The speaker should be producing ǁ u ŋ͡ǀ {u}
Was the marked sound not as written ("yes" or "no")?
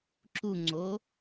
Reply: yes